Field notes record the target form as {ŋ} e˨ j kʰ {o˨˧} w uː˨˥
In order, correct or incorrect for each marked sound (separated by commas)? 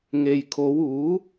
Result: correct, correct